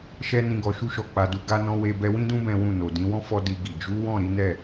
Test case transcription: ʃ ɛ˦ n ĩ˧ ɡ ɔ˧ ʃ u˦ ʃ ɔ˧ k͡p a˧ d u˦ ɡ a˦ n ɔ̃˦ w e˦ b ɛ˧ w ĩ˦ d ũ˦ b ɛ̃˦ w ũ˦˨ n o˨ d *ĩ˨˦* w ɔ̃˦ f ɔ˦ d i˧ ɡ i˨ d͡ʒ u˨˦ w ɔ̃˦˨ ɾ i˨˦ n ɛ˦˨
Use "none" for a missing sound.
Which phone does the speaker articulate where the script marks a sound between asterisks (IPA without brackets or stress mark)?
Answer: ĩ˨˦